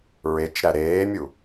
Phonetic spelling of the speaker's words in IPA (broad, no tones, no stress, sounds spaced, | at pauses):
ɹ e t͡ʃ ɾ æ ɾ eː mʲ u